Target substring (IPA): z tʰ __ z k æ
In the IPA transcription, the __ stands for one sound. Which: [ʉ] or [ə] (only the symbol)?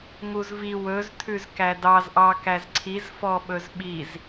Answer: ʉ